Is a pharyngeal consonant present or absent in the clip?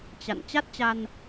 absent